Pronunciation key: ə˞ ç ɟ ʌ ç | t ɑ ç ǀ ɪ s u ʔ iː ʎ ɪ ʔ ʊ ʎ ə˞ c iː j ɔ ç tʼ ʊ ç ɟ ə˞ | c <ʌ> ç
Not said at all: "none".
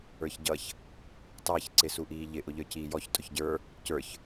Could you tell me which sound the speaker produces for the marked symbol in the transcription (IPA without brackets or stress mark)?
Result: ə˞